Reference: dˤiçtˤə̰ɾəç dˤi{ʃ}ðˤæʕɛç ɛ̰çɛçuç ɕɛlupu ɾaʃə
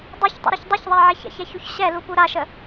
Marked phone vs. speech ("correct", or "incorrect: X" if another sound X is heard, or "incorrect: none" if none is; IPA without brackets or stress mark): incorrect: ç